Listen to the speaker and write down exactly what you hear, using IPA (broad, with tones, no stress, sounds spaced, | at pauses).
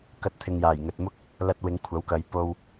k ɐ˧ t̚ t̪ʰ ɪ˨ ŋ j aː˨˩ j ŋ ɵ˨ t̚ m ʊ˥ k̚ | l ɐ˧ t̚ w ɪ˨˧ ŋ kʷʰ ɐ˨˥ w k ɐ˨˧ j p o˧ w